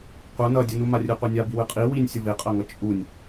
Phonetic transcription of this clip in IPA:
qʷ ʌ n ʌ dʲ ɯ n u m a rʲ ɯ qʷ ɛ nʲ a b i w ɯ qʼ i w i nʲ sʲ ʌ v e qʼ ʌ ŋ ʌ t͡ʃʼ u nʲ

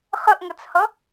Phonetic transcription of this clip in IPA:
χ ə ʔ ŋ ʌ t͡s h ʌ

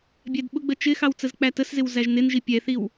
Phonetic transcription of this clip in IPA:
bʲ æ d ɓ ʊ ɡ͡b ə t͡ʃ ɪ x ɑ w t͡s ə z k͡p æ t ə s z ɪ w z æ ʒ n ɪ n ʒ i pʲ ɛ θ i w

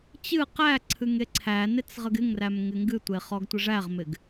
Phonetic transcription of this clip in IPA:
t͡ɕ ɨ q æ ǀʰ ɨ ŋ e ǀʰ æ n e t͡s ʁ ə ɡ ɪ ŋ r æ m ŋ ɪ ŋ ɡ ɨ tʷ e χ ɔ ɡ tʷ ɨ ʐ æ ʁ m ɪ ɡ

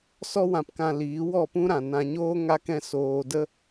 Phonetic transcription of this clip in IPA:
s ɔ˧ w ã˨ p k ã˨ l iː˨˦ w ɔ˦˨ p ũ˦ ɾ ã˨ n ã˧ ɲ oː˦ ŋ a˧ k ɛ̃˧ s oː˨ d ə˧

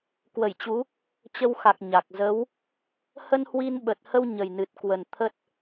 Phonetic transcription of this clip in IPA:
k w ə˧˩ j t͡ɕ u˨˦ | t͡ɕ ə˧ w x a˨˩ k̚ ɲ a˨˩ k̚ z ə˨˦ w | h ə˧ n h w i˧ n ɓ ə˨˩ t̚ h ə˧ w ɲ ə˨˩ j n ɨ˨˩ t̚ k w ə˨˩ n t̪ʰ ə˦˥ t̚

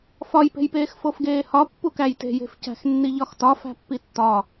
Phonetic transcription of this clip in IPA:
f ɒ j p e̤ j p eː x f o f ɡ eː h ɒ pː u k æ j t e̤ j e̤ f c æ̤ x nː i ʎ ɒ x t ɒ f æ̤ pː i tː ɒ

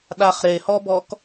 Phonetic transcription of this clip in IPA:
ɗ a χ ɾ e h ɔ b ɔ k

